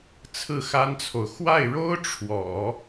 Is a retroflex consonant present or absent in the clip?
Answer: present